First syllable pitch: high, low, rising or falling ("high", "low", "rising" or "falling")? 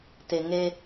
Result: low